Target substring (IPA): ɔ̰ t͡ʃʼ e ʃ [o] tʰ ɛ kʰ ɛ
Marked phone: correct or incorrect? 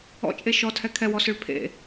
incorrect: ɔ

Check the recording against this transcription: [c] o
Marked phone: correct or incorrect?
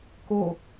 incorrect: k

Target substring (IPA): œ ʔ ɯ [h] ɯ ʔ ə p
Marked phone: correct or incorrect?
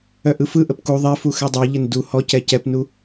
incorrect: f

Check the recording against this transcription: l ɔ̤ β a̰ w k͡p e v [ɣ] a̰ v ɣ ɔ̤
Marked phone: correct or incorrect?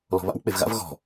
correct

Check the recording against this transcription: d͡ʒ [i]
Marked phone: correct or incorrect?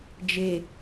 incorrect: e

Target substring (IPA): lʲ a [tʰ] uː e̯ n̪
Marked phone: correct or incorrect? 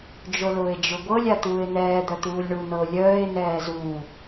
incorrect: t̪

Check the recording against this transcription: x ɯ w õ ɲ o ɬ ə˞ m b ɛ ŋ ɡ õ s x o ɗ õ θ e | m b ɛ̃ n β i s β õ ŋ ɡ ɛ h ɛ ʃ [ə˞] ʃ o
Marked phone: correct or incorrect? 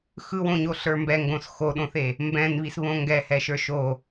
correct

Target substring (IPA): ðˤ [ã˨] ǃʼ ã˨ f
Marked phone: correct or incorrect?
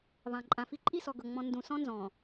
correct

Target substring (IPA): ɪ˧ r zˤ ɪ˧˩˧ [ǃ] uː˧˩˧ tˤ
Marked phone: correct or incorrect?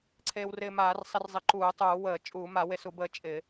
correct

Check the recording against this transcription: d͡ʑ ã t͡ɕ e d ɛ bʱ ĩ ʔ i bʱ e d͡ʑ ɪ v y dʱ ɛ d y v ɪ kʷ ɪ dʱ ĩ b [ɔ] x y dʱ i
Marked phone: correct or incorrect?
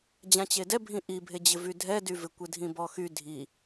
correct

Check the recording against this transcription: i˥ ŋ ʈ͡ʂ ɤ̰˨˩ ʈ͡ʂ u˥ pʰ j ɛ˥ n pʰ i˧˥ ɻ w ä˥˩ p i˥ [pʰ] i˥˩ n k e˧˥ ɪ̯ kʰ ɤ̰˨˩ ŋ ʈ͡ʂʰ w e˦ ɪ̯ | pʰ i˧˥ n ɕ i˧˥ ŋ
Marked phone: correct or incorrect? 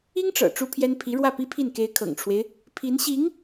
correct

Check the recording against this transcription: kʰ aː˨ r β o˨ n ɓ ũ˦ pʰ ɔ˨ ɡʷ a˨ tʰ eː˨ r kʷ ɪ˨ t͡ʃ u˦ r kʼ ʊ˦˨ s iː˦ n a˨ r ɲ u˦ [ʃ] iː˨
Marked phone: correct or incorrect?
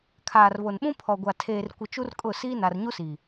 incorrect: s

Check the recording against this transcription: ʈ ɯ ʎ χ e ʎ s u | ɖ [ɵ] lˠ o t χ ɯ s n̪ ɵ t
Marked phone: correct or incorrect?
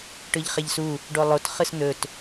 incorrect: o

